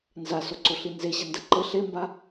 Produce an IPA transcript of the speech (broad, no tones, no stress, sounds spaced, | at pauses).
n z a s o ǀ o ɬ i n z e ɕ ɐ n d ɐ ǃ ɘ ɬ e m b a